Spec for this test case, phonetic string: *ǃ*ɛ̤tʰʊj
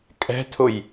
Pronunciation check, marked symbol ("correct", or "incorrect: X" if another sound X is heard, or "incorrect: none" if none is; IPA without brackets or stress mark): incorrect: kʼ